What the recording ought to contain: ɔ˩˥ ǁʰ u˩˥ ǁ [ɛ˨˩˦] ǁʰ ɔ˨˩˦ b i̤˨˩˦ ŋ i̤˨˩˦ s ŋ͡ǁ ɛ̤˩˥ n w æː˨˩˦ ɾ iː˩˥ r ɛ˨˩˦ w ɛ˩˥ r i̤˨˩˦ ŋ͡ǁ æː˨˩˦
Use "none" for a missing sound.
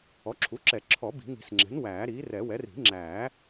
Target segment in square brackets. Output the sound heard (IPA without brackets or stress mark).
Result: ɛ˨˩˦